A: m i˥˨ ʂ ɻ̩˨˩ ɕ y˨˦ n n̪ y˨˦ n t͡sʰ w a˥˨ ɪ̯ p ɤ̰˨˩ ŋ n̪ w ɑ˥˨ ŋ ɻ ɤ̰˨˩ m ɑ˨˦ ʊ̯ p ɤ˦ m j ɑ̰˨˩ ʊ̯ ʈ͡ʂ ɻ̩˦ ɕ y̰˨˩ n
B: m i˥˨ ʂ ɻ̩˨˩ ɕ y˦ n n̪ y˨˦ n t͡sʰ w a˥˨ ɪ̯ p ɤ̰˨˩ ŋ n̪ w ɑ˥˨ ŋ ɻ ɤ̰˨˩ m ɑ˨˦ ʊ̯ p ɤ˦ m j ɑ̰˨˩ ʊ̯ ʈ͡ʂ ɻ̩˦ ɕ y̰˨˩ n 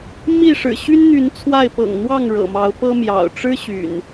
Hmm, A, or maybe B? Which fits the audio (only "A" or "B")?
B